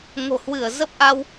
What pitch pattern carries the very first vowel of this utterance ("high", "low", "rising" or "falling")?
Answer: low